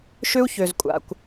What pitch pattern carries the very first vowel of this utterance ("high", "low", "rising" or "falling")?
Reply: high